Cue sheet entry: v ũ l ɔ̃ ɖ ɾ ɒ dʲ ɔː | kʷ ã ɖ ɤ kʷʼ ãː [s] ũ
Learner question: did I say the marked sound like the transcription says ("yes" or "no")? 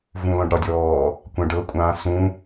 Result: yes